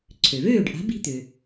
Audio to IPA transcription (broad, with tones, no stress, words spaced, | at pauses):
ǀʰø˩vøː˥˩ɖʔa̤˩˥bi̤˧ t̪ʏ˩